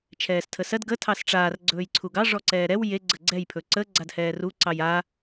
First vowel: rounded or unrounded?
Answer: unrounded